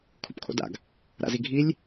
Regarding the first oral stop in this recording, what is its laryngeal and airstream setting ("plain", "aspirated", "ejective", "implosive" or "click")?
aspirated